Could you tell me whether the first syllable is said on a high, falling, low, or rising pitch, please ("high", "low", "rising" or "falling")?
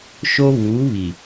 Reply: high